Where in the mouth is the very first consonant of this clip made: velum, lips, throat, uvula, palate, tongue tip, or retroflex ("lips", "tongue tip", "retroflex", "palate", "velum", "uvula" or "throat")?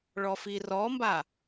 retroflex